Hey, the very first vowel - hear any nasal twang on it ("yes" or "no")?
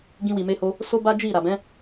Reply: yes